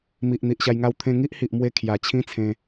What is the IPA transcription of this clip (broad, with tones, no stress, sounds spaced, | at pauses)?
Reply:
m i˨ ʔ n̪ i˨ ʔ ɕ a˧ j ŋ a˥˧ w t̪ʰ ẽ˧ ŋ i˦ ʔ h i˨ ʔ m w e˧ kʰ j a˨˩ t͡ɕʰ ĩ˦ t͡sʰ ẽ˧